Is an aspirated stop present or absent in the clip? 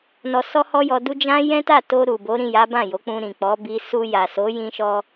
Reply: absent